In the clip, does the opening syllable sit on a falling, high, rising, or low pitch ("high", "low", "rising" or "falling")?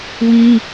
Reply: high